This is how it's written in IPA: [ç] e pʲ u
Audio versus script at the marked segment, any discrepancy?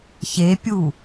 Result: no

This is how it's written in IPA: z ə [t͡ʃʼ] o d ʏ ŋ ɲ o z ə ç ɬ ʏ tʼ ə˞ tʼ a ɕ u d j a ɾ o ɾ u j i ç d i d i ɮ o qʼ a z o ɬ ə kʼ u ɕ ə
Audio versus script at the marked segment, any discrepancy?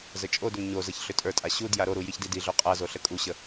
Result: no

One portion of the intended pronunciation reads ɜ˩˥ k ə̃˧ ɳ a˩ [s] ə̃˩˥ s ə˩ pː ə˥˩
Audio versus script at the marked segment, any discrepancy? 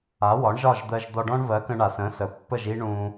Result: no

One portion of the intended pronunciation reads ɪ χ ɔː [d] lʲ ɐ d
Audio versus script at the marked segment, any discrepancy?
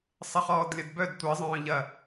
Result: no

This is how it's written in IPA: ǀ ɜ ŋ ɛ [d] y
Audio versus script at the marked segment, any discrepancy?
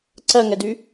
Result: no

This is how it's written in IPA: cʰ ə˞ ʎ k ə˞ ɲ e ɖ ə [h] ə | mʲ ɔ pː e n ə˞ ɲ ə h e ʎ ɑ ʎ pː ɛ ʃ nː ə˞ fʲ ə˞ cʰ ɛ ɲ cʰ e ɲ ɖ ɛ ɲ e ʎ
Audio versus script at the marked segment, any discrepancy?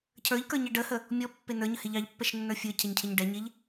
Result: no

